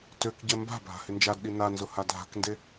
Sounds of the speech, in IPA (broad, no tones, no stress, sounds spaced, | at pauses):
t ø k ɟ ɛ m b a̤ bʱ a̤ h ɪ n d͡ʒ a d ɗ i n a n z ʊ h a dʱ a̤ k n d e